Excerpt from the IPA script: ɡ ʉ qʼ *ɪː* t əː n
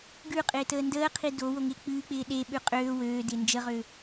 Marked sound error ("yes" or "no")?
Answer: no